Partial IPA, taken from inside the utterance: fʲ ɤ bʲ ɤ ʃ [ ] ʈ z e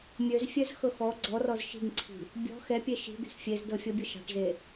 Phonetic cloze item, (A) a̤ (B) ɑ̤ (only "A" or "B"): B